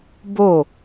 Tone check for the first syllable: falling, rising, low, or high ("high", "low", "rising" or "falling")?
falling